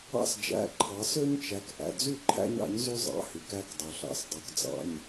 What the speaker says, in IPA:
ɑ̰˦ s d͡ʒ æ̰˩˧˩ ǃʰ ɑ˩˧ s ø˦ ɲ t͡ʃ æ˩˧ k ʔ æ̰˩˧˩ d͡z y˥˩ ǃʰ æ̰˦ ɲ ɑ̰˩˥ ɲ z y˦ zˤ ɑ̰˩˧˩ h y˩˧ k æ˩˧˩ k dˤ ø˩ ɬ ɑ̰˩˥ s dˤ ø˩˥ k d͡z ɑ̰˩˧˩ ɲ

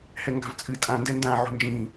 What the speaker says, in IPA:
h ɛ ŋ ɡ a̤ v t͡sʼ ɨ tʼ ã n d ɛ n d ã ʕ o̤ n d͡ʒ ĩː

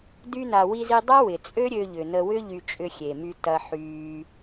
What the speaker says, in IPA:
d y˧ n a˨ w i˧ z i˧ dˤ ɐ˦ w ɪ˨ t͡sʼ ø˦ ɾʲ ø˧ ʎ ʏ˨ n ə˧ w ʏ˦ ʎ y˧ t͡ʃʼ ʏ˧ xʲ e˨ m y˧ t ɐ˧ ħ yː˧

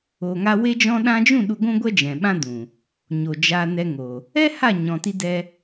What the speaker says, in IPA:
o˨ ŋ a˧ w e˧ d͡ʒ ɔ̃˧ ɗ ã˧ d͡ʒ ũ˦˨ ɗ u˧ ɡʷ ũ˦ ɡʷ ɛ˦ d͡ʒ ɛ̃˨ ɓ ã˦ d ũ˨ | ɲ o˨ d͡ʒ a˧ n ɛ˧ ŋ o˨ | ɛ˦ h a˦˨ ɲ ɔ̃˨ t i˧ d ɛ˧

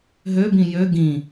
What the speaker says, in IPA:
ɦ ø b ĩ j ø ɡ ĩ

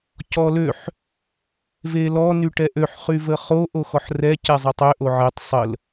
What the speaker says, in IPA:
c ɔ l ø ħ | v e l ɔ n y ʈ ɛ ʔ ø ħ χ y v ə χ o ʔ o x ɔ ħ r ɛ c ɛ zˤ ø tˤ ø ʔ o ʕ e tˤ sˤ ə l

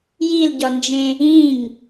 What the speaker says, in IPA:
j i l ɟ ɒ n d͡ʒ ẽ | ĩ ŋ

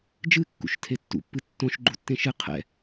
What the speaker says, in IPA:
d͡ʒ ɨ kː ṵ ʃ tʰ e tː ṵ pː ɨ tː õ ʃ ɡ͡ǃ u tː ẽ ʃ ɨ qʰ ɛ̰

